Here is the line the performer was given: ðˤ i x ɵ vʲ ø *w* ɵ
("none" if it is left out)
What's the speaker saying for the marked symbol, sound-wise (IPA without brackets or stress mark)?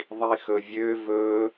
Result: v